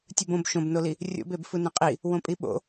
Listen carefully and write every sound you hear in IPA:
tʲ ɯ b õ b ʃ õ b n o l i | rʲ o̰ b e b f ɯ n ẽ qʼ i | w õ pʼ i ɓ o̰

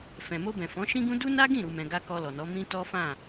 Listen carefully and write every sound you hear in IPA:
f ɛ̃˨ m o˧ b ɛ̃˨ f ɔ̃˨˦ ʃ ĩ˦ ɡ ũ˦ d u˦ n a˦ ɡ ĩ˦˨ ɾ u˧ m ɛ̃˧ ɡ a˦ k ɔ˧ l ɔ˨ n ɔ˨˦ m ĩ˦ t ɔ˦ f ã˦˨

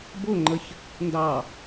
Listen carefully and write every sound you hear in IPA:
b ʊ ŋ͡ǃ ə ç | n d ɑ

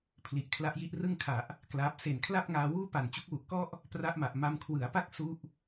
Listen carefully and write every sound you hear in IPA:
pʰ l i˨˩ ʔ kʰ l a˦˥ ʔ j i˦˥ ʔ r ɯ˥˩ ŋ kʰ a˨˩ ʔ | k l aː˦˥ p̚ s e˨˩ n kʰ l a˥˩ p̚ ŋ aː˧ w uː˥˩ p a˨˩ n t͡ɕ u˦˥ k̚ w u˨˩ ʔ k ɔ˥˩ ʔ | p r a˦˥ ʔ m a˨˩ ʔ m a˧ m kʰ w ɯ˩˦ a̯ p a˥˩ k̚ s u˥˩ ʔ

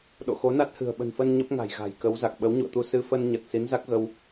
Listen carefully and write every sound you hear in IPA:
ɗ o̰˧˨ x o˨˦ n a˦˥ t̚ h ɨ̤˨˩ ə̯ ɓ ə̤˨˩ n f ə˧ n ɲ ə˦˥ p̚ ŋ a̤˨˩ j ɣ a̤˨˩ j k ə˨˦ w z a˨˩ k̚ ɓ ə˨˦ w ɲ ṵ˧˨ ə̯ t̪ u˧ s ɨ˧ f ə˧ n ɲ ə˨˩ t̚ s i˨˦ n z a˦˥ k̚ ɣ ə˧ w

